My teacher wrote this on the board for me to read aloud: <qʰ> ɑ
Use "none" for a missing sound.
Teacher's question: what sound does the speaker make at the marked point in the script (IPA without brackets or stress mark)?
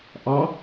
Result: ʔ